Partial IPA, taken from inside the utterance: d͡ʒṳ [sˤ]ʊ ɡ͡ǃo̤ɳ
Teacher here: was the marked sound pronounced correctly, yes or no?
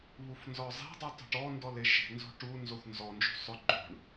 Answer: yes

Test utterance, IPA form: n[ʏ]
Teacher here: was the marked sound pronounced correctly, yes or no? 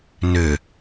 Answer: yes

